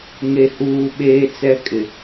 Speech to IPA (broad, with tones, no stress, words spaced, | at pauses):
ŋe˨huː˨ ɓeː˦t͡sɛ˦kʼɪ˨